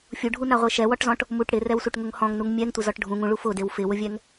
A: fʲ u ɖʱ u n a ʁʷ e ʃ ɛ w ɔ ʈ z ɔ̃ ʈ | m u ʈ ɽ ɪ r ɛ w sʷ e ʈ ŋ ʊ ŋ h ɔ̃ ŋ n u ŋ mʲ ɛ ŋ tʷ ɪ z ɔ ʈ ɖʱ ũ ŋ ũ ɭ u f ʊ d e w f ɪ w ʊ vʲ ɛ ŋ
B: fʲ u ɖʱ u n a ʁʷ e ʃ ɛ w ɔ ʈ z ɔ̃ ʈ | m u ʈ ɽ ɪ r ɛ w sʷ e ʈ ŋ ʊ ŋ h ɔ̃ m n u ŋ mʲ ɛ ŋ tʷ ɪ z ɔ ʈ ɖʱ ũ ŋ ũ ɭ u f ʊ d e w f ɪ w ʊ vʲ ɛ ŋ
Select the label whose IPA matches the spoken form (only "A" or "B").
A